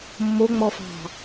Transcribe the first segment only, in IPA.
mː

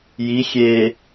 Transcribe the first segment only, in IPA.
j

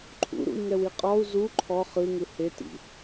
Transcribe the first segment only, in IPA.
ǃʰ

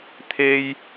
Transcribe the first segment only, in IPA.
t̪ʰ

